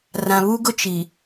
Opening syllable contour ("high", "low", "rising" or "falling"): low